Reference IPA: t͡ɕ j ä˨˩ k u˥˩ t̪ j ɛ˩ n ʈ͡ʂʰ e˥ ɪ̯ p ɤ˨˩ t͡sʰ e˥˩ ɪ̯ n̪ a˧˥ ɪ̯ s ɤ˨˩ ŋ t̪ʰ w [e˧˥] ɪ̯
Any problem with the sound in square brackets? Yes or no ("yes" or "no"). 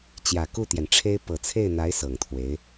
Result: no